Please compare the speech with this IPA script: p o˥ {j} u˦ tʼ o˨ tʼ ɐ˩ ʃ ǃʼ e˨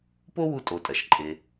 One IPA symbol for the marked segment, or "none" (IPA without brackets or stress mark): w